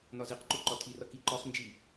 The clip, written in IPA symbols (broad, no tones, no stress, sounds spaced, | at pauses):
n ɒ z i q ǃ u ǃ ɒ tʰ i r ʌ k i ǃ ɒ χ n d͡ʒ i